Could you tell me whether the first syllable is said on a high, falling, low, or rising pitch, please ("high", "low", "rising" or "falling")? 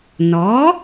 rising